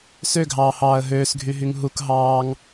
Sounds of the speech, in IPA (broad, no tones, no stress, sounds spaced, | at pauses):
s ø ɡʱ ɑː h ɑː ə̯ ɦ øː s ɡʱ y ɦ y ŋ ɦ u k ɦ ɑː ŋ